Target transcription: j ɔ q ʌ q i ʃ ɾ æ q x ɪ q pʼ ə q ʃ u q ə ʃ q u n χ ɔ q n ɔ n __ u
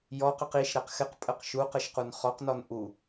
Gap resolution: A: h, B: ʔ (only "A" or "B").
B